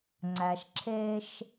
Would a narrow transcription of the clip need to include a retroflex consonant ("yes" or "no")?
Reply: no